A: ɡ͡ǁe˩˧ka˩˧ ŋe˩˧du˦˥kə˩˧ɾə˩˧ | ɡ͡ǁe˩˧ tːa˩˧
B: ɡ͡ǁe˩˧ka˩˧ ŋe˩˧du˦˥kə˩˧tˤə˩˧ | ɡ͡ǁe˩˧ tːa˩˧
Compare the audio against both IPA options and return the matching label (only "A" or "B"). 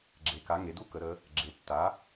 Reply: A